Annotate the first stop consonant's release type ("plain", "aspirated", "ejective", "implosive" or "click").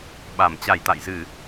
implosive